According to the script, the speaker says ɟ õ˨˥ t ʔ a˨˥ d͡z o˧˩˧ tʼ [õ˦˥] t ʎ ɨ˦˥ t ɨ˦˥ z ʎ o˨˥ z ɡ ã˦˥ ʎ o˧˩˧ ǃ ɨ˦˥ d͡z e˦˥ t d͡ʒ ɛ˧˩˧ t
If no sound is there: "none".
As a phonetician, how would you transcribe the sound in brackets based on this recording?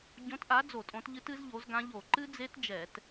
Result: õ˨˥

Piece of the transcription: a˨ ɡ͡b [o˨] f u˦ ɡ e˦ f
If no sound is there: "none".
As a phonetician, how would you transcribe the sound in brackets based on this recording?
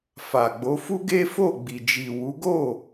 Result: o˨˦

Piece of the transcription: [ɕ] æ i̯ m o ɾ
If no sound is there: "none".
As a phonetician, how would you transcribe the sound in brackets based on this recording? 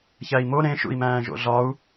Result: ç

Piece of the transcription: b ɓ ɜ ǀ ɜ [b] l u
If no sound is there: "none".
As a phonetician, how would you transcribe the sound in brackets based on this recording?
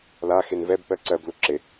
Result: b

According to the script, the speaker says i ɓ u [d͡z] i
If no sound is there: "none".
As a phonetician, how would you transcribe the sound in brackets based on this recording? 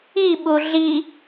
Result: ɮ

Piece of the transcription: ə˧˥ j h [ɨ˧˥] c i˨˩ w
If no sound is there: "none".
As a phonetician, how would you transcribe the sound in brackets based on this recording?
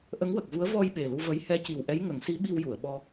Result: ɛ˧˥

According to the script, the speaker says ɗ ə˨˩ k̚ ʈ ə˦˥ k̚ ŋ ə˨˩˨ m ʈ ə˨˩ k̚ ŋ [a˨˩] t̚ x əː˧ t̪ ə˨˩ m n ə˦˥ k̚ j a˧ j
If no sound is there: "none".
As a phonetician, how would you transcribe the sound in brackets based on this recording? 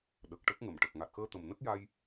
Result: a˨˩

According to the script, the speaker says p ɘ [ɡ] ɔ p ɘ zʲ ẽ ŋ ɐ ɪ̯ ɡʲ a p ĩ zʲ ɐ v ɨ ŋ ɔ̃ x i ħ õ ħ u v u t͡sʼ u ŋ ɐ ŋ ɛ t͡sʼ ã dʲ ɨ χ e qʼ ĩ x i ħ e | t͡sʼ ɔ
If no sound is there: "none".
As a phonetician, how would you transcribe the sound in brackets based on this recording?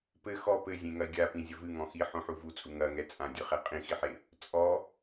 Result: x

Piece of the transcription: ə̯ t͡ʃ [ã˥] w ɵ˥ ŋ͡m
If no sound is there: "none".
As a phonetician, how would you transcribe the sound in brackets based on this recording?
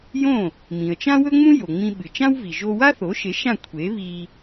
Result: ã˥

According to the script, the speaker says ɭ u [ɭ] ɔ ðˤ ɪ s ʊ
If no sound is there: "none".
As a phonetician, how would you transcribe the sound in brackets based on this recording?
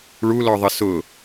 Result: l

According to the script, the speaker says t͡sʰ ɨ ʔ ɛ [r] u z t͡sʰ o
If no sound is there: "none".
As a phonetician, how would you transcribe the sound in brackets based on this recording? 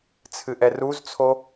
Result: r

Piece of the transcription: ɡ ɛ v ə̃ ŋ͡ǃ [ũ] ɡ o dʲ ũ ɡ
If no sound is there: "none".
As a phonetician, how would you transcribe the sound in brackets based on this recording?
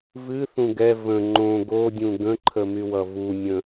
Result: õ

